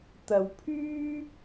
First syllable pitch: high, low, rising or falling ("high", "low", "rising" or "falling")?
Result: low